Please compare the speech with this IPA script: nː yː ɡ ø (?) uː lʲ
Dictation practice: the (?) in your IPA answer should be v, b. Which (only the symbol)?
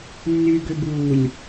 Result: b